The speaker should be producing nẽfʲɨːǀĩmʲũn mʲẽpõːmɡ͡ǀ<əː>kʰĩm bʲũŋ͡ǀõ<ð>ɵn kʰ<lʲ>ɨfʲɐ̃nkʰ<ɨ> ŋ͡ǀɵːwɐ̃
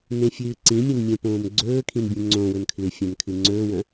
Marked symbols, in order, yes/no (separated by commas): no, no, no, yes